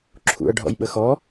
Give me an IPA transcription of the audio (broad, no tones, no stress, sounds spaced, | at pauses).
ǁʰ ṵ ɐ̯ ɖʱ ɔ̰ j ɓ ə x ɔ